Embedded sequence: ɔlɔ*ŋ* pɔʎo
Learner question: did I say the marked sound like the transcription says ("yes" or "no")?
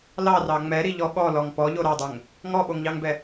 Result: yes